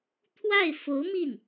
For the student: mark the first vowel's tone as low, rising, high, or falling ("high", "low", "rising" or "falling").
falling